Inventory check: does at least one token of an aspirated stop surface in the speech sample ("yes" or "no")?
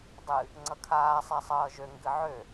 yes